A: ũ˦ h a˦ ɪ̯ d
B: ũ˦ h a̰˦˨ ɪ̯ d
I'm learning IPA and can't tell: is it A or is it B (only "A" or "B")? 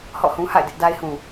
B